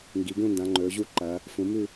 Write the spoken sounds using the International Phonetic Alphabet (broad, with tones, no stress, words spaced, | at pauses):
ŋɡi˩˧ɡũ˥˨ ndã˩˧ŋ͡ǃɵː˩˧ʑu˥˨ǃɐː˩˧ | fũ˩˧ mʉ˥˨